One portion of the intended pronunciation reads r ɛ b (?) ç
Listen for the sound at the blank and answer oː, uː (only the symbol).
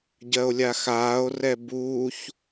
uː